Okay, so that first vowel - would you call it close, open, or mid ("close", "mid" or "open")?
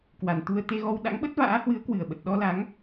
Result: open